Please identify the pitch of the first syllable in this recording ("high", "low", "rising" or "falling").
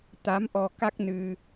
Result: rising